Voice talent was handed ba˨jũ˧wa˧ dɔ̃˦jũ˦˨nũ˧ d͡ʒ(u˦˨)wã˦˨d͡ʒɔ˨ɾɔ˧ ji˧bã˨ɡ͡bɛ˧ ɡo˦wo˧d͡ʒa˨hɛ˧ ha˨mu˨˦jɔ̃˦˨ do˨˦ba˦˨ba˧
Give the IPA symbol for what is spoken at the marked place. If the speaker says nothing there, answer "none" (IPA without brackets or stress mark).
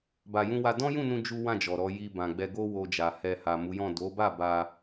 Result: u˦